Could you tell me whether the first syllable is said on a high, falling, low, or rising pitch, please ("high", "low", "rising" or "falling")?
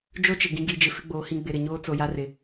high